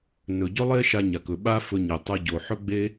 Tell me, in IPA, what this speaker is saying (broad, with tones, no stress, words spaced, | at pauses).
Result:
nɵ˨ɟɵ˦lˠe˦ ʃa˧ɲa˨kɵ˨ ɓa˦fɵ˧ɲe˨ tˤɤ˧ ɟo˨ħɵ˦ɡ͡be˦